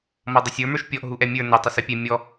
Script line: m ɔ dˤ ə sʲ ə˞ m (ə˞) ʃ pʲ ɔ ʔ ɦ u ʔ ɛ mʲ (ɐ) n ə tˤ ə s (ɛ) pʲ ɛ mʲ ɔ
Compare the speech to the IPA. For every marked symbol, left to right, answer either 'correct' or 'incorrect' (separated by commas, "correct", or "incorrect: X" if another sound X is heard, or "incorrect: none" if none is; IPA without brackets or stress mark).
correct, incorrect: ə˞, correct